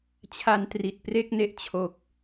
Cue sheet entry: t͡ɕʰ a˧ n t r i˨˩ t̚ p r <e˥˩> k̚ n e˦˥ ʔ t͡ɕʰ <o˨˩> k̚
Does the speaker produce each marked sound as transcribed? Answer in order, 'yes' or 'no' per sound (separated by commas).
yes, yes